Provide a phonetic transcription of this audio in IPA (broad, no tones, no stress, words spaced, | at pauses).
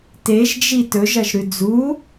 teʒd͡ʒi tɵʒɐʒɾʉ d͡zu